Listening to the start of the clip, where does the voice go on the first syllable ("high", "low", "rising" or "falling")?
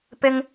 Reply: high